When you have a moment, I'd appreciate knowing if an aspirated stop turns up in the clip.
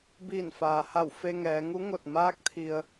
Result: yes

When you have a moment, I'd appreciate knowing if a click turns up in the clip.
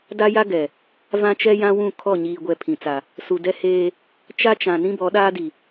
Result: no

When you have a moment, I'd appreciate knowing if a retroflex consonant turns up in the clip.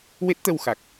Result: no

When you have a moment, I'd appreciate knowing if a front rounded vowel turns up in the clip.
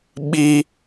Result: no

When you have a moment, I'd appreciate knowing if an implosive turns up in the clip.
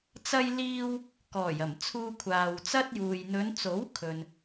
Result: no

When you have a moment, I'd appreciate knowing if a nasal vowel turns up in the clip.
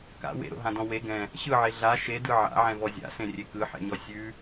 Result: yes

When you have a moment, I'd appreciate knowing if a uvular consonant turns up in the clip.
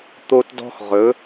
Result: yes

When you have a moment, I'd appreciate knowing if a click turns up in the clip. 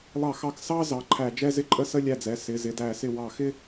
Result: yes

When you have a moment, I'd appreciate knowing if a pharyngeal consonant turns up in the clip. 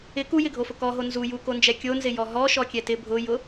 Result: no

